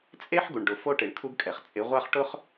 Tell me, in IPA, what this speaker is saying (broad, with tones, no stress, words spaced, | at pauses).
t͡sʼe˦ħɡu˨ɳ ɖʊ˨fo˦ʈɪ˨ɳ kʰu˦ɡkʼɛ˨χ t͡sʼɪ˨˦ʁʷa˦χʈʊ˦χ